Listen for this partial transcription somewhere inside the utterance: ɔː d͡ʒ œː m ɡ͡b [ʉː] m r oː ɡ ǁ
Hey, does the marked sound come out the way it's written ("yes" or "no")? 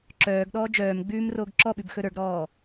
yes